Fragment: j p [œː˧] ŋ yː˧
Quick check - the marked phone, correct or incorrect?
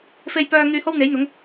correct